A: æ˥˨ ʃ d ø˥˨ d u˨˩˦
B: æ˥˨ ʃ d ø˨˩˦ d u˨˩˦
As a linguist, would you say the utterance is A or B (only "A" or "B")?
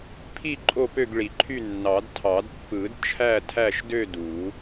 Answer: A